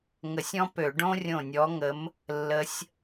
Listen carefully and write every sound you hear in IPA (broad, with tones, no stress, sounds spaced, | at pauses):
ŋ ə˧˩˧ sʲ ɔ̃˥ p ø˧˩˧ ɖ õ˥ rʲ õ˦˨ nʲ ɔ˧˥ ŋ ə˧˥ m | lː ə˧˥ sʲ